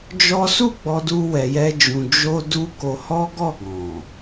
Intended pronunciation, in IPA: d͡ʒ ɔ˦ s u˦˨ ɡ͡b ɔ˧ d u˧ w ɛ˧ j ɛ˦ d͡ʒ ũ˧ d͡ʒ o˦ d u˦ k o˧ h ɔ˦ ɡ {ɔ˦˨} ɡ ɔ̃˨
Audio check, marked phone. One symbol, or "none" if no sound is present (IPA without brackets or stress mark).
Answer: ɔ˦˨